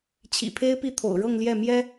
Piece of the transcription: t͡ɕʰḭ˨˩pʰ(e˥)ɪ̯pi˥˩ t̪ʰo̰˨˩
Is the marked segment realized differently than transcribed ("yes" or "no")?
no